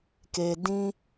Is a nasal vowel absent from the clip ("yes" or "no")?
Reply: no